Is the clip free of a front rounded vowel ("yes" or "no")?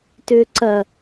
no